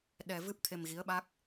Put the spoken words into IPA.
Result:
ɗ ɛ˧ v ɨ˦˥ p̚ t̪ʰ e˧ m ɣ i˧˥ ə̯ ɓ a˦˥ k̚

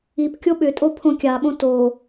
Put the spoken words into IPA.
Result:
i p kʲ o ɓ ʏ tʼ o pʰ õ kʲ a ɓ õ t o

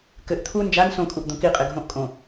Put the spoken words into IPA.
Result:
k ɘ ʔ t̪ʰ u n d͡ʒ a n s õ kʼ u ʔ d̪ õ k i qʼ e ɡʱ õ ʔ kʼ õ

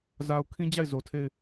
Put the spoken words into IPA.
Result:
z a˨ ʊ̯ kʰ ĩ˦ d͡ʑ a˦˨ ɪ̯ z o˨ tʰ e˦˨ ɪ̯

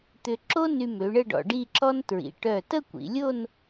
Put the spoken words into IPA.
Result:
t̪ ʏ˧ ǁ o˥ n y˧ m ø˩˧ ɳ ə˥˧ ɖ ɔ̰˧ ɖ i˥˧ ǁ ɔ˥ n t ɹ ḭ˩˧ ʈ œ˧˩ t ə˥˧ kʷ ḭ˩˧ lʲ o˥˧ n

